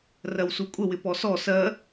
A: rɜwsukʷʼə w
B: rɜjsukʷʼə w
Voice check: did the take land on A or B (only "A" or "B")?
A